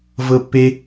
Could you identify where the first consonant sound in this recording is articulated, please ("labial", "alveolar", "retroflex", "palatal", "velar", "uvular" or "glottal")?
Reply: labial